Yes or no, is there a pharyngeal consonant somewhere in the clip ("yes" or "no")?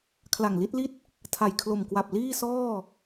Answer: no